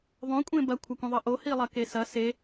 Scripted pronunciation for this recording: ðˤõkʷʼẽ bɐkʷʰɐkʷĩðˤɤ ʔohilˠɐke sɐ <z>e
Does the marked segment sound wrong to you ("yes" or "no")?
yes